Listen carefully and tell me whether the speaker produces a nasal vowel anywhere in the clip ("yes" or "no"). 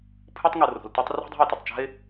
no